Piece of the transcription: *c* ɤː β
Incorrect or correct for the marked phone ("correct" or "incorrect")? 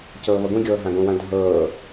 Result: correct